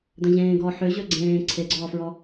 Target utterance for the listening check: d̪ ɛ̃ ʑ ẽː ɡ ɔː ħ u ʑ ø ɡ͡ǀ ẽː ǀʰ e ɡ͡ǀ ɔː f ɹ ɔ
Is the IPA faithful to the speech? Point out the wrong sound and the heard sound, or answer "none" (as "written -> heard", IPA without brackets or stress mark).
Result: u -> ø